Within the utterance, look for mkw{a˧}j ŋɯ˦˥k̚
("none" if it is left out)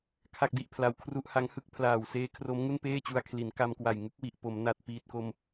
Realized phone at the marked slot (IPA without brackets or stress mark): a˨˩